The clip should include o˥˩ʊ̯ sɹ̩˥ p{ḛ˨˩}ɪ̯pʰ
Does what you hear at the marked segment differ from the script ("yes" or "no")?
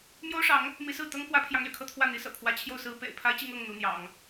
no